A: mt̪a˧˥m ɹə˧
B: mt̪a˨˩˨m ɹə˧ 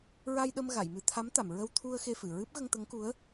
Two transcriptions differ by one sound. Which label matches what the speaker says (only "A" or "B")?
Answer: B